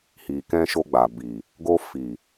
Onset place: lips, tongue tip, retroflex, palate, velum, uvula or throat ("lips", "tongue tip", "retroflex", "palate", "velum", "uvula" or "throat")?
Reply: throat